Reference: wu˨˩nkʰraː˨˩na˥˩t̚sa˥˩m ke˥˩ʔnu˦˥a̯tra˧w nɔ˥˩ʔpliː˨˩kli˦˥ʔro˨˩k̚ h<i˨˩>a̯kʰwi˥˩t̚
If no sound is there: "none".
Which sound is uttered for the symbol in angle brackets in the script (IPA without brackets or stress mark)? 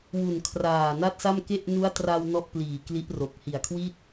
i˨˩